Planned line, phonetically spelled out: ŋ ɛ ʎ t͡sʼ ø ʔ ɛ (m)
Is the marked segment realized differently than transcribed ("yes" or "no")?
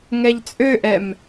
no